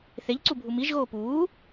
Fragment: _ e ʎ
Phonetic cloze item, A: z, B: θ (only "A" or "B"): B